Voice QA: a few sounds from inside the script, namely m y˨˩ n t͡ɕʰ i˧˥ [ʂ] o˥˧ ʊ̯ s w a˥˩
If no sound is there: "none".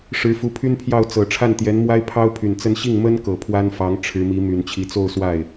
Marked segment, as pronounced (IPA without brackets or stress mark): t͡s